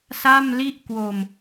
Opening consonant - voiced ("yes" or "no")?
no